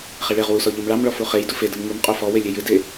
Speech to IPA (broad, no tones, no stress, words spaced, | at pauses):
χeɭeʁ wusɔ ʎɯmɭɑmɭɔ fuχej dufe dɯmŋumqʼo fɔwe lʲejɨde